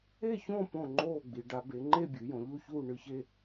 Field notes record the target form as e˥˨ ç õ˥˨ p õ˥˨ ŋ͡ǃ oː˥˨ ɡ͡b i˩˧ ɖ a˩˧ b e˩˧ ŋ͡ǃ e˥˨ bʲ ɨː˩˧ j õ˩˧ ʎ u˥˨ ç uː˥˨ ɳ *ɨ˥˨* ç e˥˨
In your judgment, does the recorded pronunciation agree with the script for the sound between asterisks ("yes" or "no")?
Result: yes